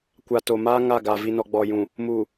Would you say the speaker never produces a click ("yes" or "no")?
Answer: yes